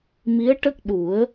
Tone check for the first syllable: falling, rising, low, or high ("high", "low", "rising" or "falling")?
rising